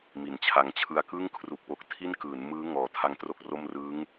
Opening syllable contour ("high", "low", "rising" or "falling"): low